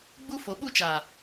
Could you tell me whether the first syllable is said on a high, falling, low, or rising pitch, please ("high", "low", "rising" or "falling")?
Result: high